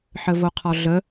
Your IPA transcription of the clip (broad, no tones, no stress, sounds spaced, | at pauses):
ħ ə v o qʰ ɒ ɮ ə